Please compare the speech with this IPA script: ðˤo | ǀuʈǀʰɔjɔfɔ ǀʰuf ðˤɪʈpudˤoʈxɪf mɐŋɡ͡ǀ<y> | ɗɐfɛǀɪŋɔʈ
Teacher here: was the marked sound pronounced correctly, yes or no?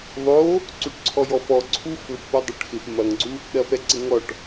no